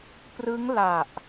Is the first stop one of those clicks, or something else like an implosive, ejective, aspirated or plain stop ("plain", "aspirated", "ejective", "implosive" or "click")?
plain